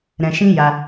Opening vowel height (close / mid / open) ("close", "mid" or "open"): mid